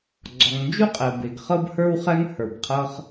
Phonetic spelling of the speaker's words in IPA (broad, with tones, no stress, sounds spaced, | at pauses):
ɡ͡ǀ ɔ˩ ŋ n d͡ʒ u˥ qʼ ɛ˩ b e˩ ɡ χ ɤ˥ b h ə˞˥ w χ ɛ˥ ŋ h ə˞˩ b qʰ ɤ˥ χ